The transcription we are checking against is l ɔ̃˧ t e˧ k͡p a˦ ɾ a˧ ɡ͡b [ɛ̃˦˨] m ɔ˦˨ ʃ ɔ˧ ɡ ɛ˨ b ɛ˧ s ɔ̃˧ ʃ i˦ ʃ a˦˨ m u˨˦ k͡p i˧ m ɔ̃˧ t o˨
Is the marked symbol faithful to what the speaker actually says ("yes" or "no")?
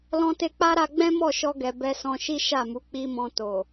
no